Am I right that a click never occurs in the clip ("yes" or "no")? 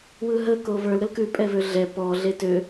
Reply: yes